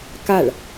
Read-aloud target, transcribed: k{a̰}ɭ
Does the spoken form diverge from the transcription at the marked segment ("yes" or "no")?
yes